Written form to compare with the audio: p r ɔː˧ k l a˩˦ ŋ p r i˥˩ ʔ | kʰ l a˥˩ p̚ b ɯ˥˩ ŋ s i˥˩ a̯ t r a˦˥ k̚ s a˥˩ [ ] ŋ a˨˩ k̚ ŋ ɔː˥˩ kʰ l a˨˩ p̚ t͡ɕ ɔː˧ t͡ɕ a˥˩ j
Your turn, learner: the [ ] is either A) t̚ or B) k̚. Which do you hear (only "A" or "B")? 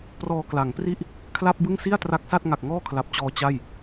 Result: A